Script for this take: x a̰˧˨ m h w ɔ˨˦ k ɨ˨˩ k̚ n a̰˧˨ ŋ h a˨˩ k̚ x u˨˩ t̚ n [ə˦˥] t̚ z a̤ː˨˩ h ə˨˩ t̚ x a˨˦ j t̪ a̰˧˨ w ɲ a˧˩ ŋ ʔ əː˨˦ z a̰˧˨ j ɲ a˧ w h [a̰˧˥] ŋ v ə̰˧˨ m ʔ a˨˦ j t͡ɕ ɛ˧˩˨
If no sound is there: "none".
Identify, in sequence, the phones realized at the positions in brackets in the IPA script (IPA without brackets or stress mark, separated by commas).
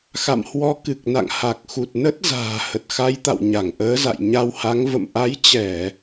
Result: ə˦˥, a˨˦